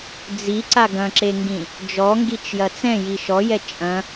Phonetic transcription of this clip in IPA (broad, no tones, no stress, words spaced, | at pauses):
d͡ziǀa ɡɐ̃ǁeŋɡĩ | d͡ʒɔŋɡit͡ʃjɐ t͡sɛ̃ji ʃɔjɛ t͡ʃʼɐ̃